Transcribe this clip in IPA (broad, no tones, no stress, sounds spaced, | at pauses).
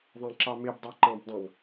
ðˤ ã ǁ ɑ m e b dˤ ɑ ǃ ɑ̃ b dˤ ɑ̃ ŋ